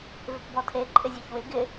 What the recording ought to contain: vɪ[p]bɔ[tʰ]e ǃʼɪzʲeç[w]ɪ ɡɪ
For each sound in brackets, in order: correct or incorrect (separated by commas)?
correct, correct, correct